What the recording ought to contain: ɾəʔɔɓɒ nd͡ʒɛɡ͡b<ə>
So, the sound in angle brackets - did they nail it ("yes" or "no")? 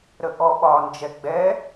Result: no